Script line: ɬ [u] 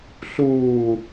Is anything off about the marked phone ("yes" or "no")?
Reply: yes